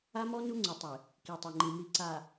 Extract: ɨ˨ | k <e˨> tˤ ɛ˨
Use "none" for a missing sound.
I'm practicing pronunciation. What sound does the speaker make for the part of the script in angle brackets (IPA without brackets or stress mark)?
i˨